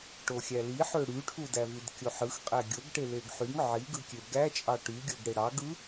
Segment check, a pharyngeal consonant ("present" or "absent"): present